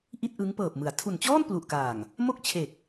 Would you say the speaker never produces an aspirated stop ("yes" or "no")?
no